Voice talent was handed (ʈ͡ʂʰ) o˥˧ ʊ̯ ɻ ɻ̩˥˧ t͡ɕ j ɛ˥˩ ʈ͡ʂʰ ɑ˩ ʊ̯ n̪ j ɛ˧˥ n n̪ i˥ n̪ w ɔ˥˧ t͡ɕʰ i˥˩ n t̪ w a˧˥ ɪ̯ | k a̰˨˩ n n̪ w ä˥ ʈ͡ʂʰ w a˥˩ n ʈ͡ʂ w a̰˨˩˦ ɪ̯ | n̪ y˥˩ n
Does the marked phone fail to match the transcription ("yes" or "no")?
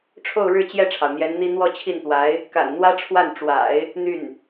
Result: no